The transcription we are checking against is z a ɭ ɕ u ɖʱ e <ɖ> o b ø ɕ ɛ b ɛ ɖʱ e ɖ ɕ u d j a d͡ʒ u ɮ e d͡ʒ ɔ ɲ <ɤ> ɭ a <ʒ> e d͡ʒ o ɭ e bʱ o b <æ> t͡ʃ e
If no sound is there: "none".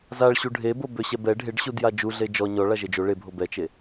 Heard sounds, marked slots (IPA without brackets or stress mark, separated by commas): b, ɔ, ʒ, ɛ